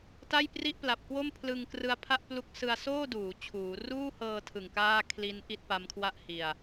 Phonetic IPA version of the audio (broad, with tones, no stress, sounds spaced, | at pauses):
t a˥˩ j p r i˥˩ ʔ p l a˨˩ p̚ k w o˥˩ m pʰ l ɯ˧ ŋ k r ɯ˦˥ a̯ pʰ a˥˩ ʔ p l u˥˩ k̚ s ɯ˧ a̯ s oː˥˩ d uː˩˦ t͡ɕʰ uː˩˦ r uː˥˩ h ɤː˧ tʰ ɯ˨˩ ŋ k aː˥˩ kʰ l i˦˥ n ʔ i˥˩ t̚ p a˦˥ m kʰ w a˥˩ ʔ h i˧ a̯